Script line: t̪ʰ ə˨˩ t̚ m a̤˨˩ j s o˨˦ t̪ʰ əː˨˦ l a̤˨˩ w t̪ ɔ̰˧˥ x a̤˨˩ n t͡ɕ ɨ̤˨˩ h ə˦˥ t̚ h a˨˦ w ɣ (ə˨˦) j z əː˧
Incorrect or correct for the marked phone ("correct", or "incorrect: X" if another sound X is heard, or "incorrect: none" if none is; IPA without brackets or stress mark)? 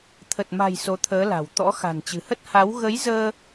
correct